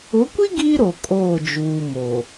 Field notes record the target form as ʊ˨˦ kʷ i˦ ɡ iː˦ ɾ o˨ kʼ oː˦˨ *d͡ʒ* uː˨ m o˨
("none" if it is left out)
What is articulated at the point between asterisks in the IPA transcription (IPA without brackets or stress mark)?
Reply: d͡ʒ